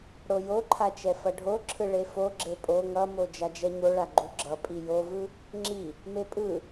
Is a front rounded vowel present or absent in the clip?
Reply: absent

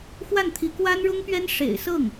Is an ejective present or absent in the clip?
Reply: absent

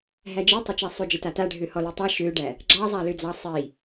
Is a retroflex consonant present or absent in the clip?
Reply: present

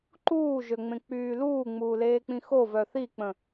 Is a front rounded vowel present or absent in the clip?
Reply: present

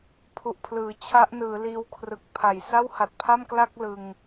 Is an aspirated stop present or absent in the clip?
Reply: present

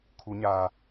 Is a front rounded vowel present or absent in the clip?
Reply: absent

